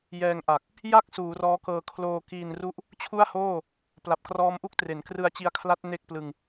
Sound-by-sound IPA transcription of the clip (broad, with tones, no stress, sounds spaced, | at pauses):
j ɛː˧ ŋ ʔ a˨˩ k̚ | j a˥˩ k̚ s uː˩˦ r ɔː˦˥ k ɤː˧ kʰ l oː˧ k iː˧ n r u˥˩ ʔ | t͡ɕʰ u˥˩ a̯ h oː˥˩ | p l a˨˩ p̚ k r ɔː˦˥ m ʔ u˥˩ k̚ t r e˩˦ n k r ɯ˧ a̯ t͡ɕ i˧ a̯ kʰ l a˦˥ t̚ n e˥˩ k̚ p l ɯ˧ ŋ